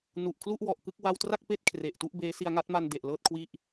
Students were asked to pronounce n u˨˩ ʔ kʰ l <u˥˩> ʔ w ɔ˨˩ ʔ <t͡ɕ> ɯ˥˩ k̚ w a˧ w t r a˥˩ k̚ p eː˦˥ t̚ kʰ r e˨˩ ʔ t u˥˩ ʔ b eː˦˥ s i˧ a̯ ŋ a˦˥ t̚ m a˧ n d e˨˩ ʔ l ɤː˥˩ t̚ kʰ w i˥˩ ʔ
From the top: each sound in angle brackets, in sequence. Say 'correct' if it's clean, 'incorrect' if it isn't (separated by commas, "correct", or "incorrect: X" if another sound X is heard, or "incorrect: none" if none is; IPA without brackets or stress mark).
correct, incorrect: k